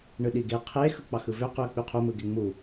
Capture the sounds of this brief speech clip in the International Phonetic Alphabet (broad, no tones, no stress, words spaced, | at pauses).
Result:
ɳɯɗiɡe qʰe xɯk͡pɑxɯvø qyɐ̯k͡pyqʰu mɯɡeŋ͡mu